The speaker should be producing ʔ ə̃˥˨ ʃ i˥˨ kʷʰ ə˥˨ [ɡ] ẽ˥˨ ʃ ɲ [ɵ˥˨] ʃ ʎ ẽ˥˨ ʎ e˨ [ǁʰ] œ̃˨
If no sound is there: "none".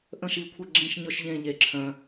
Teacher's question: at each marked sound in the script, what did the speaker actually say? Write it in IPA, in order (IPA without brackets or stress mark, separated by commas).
ɡ͡ǁ, ɵ˥˨, ǁʰ